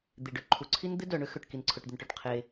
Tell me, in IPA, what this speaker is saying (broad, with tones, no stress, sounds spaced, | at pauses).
d̪ i˩ ɖ ø˩ ǃʰ u˩ ǀʰ i˥ n d̪ ɪ˥ d œ˩ ɳ ø˥ x ø˩ ʈ k i˩ n ǀʰ ʊ˩ ʈ d̪ ɪ˩ n ʈ œ˩ ʈ qʰ e˩